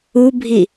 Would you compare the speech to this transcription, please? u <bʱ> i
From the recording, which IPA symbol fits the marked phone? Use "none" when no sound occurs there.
bʱ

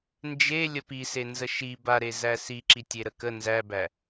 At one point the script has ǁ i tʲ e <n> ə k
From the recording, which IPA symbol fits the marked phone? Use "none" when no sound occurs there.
ɾ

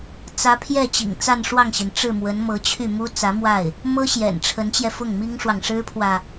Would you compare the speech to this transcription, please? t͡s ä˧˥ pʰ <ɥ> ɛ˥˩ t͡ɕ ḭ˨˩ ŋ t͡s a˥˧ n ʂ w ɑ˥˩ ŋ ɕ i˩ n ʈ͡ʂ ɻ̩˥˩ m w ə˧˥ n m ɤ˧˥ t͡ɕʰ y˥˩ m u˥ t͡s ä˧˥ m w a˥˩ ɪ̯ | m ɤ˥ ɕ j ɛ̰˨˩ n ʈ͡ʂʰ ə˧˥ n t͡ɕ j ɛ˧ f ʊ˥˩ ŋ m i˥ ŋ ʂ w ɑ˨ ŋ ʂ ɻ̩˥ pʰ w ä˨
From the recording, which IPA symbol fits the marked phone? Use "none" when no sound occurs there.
j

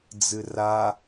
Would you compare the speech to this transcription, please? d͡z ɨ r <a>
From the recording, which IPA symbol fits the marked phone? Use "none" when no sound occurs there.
a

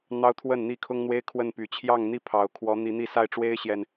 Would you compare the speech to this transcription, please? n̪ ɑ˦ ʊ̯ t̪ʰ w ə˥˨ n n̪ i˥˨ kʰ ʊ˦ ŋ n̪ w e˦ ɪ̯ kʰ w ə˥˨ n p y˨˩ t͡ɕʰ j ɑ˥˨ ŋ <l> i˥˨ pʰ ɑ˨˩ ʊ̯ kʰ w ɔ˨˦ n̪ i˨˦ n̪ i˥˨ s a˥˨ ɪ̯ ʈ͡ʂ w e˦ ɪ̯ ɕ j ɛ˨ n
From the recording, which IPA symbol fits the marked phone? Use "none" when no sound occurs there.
n̪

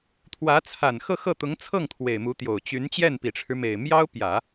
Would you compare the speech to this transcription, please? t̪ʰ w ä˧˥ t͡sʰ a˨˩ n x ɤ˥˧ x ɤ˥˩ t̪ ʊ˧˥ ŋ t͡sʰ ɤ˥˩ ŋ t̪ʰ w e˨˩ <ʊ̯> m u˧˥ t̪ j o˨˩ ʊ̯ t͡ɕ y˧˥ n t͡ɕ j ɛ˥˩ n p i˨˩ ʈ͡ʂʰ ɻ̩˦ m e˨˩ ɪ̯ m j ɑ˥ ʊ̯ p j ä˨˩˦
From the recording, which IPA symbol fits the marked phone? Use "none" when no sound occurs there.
ɪ̯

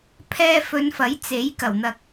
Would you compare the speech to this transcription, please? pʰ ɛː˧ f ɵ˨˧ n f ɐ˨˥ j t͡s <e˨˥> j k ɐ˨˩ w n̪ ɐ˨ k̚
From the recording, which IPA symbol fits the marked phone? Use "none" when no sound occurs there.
e˨˥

